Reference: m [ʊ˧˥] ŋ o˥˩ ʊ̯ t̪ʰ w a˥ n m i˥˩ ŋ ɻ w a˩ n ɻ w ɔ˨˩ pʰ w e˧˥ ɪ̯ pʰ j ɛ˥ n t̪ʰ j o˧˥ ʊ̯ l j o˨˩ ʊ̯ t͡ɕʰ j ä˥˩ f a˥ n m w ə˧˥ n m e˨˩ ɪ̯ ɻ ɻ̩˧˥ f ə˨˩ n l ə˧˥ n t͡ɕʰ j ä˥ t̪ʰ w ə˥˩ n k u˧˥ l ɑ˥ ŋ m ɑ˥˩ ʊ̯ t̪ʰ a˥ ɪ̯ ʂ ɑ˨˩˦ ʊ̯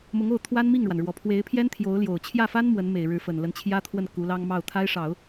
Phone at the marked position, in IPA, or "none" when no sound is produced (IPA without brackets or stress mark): ʊ˧˥